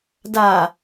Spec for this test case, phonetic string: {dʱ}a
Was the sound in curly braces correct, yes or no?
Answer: no